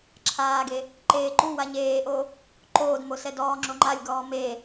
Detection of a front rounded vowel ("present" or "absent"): absent